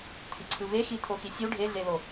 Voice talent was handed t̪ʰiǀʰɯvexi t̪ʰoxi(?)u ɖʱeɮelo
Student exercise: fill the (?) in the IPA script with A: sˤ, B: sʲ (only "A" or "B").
B